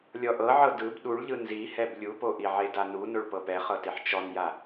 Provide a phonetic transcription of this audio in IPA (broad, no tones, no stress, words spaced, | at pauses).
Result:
lʲɔʔɤʕɤ dɯb ɗuɭʎɯ nzihɛb lʲupoʔiʕe danunoɭ pɤpɛχɤteħ t͡ʃɔnja